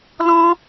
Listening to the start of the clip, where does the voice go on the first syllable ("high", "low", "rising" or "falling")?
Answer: high